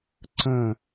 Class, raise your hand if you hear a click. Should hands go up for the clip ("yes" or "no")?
yes